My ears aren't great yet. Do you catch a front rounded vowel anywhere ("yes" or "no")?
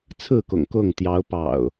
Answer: no